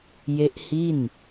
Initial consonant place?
palatal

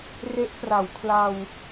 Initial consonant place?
alveolar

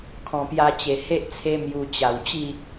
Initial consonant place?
velar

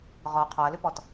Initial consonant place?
uvular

